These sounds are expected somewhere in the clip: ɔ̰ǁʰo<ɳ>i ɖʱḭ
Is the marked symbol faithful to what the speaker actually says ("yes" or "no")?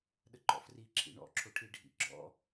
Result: no